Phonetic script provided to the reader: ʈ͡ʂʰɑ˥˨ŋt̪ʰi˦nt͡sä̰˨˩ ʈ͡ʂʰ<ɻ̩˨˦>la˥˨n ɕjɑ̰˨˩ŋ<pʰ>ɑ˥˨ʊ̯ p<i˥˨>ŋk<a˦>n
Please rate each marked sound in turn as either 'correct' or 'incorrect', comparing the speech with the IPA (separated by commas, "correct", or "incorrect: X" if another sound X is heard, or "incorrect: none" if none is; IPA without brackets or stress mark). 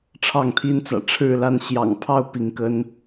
incorrect: ɻ̩˥˨, correct, incorrect: i˨˦, incorrect: ə˦